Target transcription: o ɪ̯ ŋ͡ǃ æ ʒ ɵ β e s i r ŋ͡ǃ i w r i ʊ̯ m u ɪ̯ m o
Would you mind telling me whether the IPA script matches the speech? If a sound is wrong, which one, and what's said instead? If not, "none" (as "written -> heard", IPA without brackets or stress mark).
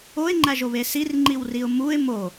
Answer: ɵ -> o